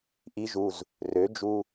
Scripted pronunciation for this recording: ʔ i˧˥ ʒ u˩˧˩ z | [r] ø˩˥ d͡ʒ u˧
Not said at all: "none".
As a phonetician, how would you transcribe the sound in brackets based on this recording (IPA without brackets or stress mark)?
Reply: r